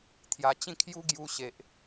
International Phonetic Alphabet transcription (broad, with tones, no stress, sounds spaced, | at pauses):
t̪ʰ j a˧ t͡ɕ ĩ˥˧ kʰ j u˦ ɡ j u˧ ɕ e˨ ʔ